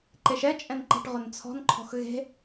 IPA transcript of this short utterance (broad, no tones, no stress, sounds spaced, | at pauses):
ǃ e ʃ ɛ t͡ʃʼ ɛ̃ n ǃ ɛ̤ ʈ ʁ ʊ n t͡sʰ ɔ̤ n ǃʰ ɔ̤ x ɣ e̤